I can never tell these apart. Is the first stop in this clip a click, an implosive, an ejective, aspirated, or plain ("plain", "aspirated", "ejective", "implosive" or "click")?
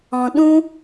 implosive